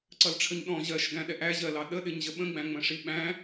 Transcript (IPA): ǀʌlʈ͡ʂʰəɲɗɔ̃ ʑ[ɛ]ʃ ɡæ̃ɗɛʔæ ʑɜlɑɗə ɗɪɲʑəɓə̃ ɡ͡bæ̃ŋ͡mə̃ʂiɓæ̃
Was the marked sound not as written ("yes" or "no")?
yes